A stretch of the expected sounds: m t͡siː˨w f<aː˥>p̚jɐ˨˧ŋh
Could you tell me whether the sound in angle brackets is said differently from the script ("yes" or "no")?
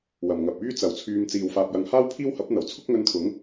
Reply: yes